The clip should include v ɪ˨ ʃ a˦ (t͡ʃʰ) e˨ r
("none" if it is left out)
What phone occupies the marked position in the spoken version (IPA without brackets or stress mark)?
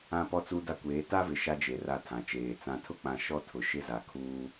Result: d͡ʒ